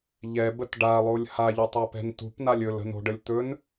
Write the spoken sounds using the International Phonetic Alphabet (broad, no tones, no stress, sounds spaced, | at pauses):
ʎ ɛ b ə t ɖ a lˠ o lʲ h a ʎ o tˤ ɛ p ɛ̤ n t ṳ p n a lʲ ɵ l ə̤ n o̤ ɖ ə lʲ t̪ ɵ n